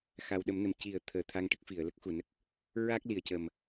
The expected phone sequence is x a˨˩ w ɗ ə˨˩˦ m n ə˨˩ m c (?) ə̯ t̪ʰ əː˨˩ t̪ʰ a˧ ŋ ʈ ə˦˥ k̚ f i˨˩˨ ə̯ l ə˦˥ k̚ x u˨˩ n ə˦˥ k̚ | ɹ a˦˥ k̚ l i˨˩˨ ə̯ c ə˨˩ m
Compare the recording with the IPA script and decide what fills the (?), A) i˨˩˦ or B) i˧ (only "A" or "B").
A